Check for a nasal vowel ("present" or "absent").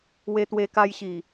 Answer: absent